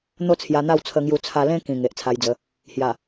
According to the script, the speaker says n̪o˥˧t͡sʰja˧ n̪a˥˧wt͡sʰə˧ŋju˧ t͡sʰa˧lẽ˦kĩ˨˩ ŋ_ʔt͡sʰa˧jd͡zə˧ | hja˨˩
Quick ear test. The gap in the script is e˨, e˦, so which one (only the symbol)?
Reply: e˨